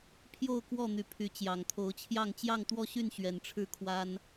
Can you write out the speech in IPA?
pʰjo˥˨ʊ̯kwɔ˥˨n̪y˨˦ pʰy˨˦ t͡ɕjɑ˨˩ŋt̪ʰo˨˦ʊ̯t͡ɕʰjɑ˥˨ŋ t͡ɕjɑ˥˨ŋt̪wɔ˥˨ɕy˥˨n ɕɥɛ˨˦nʈ͡ʂʰɻ̩˥˨kʰwa˦n

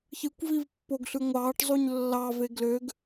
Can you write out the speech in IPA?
çɯkʷvivpːoɡɬɯ ŋʷɑːʈzˤuɲ lːɑve ɡløɡ

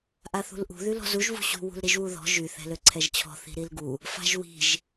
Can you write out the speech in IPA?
ʔaθṳlʔṳ ðylɔ̤zuʒ vṳɕṳ wṳlɾiʒwuðɔ̤ ʒy θɛ̤løǀʰɛʒt͡ɕʰɔ̤ θi̤ɾilɡu | fa̤ʒwi̤ʒ

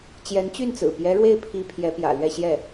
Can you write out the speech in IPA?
t͡ɕjɛ˧˥nt͡ɕy˥˩nt͡sɹ̩˨˩ pjɛ˧˥ɻwe˥˩ɪ̯pʰi˧˥ pʰjɛ˧˥pjä̰˨˩lɥɛ˥˧ ɕjɛ˥˩

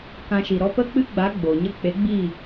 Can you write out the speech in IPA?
kã˧ʃi˨ ɾɔ˧pə˦k͡pɨ˦ɡ͡ba˨˦ ɡ͡bo˨ɲə˦ k͡pe˨˦ɡ͡bi˦˨

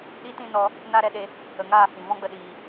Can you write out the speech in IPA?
ɗi˦tĩ˦nɔ˧ | na˦ɾɛ˦ɗe˧ | ə˨ŋaː˦˨ hĩ˨ vɔ̃˦ɡ͡bə˧ɗiː˨

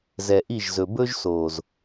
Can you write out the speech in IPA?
zɛ˨ʔi˦˨ʒzɵ˨ bɵ˦ʒso˨z

